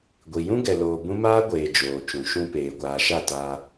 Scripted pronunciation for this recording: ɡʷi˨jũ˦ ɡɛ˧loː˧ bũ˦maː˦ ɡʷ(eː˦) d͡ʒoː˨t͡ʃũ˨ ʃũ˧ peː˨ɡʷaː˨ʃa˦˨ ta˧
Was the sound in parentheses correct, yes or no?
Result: no